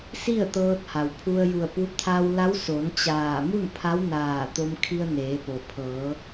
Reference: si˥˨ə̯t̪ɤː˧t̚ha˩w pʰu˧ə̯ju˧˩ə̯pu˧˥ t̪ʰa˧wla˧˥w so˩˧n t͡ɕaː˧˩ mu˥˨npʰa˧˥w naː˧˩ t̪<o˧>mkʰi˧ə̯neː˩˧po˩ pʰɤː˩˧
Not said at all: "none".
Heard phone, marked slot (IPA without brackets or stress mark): o˧